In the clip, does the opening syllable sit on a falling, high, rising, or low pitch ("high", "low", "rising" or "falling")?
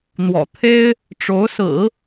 low